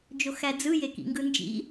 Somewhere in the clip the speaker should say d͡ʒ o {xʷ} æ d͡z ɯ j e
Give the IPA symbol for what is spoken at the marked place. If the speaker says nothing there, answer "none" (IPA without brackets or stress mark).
x